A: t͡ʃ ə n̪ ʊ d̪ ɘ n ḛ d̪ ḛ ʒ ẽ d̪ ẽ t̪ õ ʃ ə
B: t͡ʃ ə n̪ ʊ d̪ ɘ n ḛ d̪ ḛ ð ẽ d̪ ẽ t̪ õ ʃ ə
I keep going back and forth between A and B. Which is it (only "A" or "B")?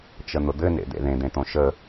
B